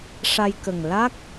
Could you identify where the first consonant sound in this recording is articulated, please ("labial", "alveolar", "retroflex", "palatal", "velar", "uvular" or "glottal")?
retroflex